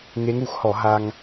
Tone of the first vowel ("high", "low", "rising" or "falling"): rising